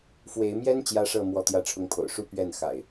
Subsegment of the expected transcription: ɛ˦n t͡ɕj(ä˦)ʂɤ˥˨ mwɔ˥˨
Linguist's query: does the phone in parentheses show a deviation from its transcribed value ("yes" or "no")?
no